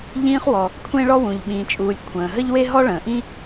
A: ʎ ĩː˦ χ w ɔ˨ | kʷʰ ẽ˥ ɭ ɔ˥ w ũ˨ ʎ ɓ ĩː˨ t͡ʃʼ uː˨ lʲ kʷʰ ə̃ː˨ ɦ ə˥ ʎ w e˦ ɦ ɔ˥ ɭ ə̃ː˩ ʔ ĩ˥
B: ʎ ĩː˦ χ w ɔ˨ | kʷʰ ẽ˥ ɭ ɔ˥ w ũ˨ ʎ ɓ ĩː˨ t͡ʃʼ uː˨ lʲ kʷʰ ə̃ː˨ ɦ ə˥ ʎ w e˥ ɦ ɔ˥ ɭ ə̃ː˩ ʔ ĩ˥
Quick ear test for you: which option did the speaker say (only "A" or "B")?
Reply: B